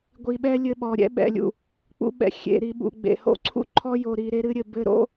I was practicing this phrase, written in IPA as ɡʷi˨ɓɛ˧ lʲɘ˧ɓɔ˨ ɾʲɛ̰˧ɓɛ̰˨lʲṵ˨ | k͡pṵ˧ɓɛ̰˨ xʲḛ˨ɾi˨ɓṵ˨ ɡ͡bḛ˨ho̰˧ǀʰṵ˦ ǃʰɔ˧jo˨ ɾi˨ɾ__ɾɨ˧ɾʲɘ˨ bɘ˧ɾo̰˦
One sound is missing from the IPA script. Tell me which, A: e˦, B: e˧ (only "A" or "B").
B